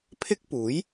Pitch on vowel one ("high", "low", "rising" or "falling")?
high